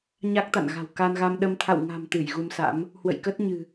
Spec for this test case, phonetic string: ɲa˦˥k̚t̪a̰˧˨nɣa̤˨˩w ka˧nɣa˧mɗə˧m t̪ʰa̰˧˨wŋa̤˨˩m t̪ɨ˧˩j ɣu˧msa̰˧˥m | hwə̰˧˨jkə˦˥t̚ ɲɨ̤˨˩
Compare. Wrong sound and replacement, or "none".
none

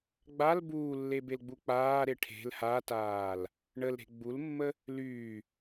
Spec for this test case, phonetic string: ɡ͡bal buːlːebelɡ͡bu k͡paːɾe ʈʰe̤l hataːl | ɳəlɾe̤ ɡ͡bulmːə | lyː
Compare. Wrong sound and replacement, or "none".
none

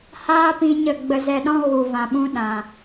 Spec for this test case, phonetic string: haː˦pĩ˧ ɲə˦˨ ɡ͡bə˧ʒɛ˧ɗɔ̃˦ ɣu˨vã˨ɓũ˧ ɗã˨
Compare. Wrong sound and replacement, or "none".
ʒ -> z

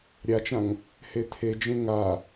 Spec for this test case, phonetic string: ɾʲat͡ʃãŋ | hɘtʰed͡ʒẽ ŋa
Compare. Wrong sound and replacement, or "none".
ɘ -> e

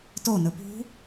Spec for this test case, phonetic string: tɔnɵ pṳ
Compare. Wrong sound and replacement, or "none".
ɔ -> o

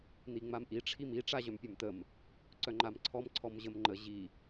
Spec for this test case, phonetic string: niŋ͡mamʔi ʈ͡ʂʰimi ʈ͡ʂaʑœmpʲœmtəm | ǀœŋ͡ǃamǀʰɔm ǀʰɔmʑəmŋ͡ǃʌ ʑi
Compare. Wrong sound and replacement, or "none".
ʌ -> ə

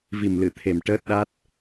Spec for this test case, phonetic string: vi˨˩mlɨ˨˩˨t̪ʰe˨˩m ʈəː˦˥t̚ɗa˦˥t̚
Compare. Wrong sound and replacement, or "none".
none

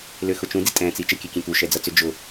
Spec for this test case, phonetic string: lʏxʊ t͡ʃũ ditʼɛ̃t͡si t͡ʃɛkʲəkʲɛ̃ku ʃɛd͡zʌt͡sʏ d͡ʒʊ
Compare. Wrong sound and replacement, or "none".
none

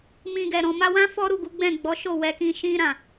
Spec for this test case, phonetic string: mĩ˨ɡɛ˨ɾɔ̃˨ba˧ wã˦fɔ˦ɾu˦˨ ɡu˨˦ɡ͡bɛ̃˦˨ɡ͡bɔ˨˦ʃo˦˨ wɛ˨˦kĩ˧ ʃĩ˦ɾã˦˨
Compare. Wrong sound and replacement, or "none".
b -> m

